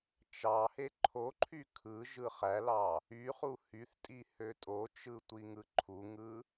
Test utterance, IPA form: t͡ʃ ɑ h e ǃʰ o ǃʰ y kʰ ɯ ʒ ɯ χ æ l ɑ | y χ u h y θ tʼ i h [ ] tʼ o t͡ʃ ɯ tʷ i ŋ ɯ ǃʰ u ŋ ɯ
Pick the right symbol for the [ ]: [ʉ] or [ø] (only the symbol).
ø